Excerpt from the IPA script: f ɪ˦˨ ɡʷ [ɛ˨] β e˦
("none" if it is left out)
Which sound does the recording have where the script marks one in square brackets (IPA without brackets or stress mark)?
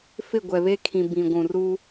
ɛ˨